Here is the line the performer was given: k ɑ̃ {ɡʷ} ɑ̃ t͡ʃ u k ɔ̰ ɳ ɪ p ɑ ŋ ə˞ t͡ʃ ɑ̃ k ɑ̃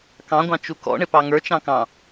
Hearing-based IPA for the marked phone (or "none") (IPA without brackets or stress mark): ɡʷ